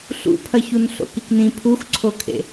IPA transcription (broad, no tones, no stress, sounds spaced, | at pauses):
ɬ ṵ pʰ ɐ ç u n ɬ o̰ k i k n ĩ pʰ u x ǀʰ o kʰ ḛ